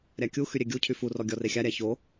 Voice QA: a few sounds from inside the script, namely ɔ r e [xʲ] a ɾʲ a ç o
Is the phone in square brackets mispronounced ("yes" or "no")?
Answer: no